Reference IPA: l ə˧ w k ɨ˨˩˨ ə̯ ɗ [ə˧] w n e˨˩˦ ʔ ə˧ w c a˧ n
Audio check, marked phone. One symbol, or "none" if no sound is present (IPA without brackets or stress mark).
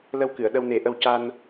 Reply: ə˧